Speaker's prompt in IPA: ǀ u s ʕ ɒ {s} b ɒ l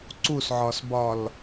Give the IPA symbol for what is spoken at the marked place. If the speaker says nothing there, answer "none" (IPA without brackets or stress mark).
s